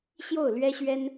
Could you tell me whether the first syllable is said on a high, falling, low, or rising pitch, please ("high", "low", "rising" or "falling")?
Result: falling